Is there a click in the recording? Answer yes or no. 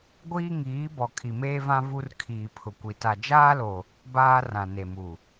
no